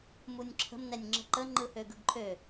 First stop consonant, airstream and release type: click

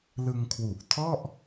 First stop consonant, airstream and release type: aspirated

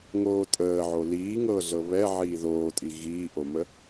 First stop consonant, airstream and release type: ejective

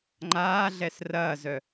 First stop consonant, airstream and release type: click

